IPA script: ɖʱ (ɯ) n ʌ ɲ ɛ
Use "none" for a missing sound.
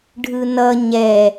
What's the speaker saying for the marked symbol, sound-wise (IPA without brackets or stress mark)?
ɯ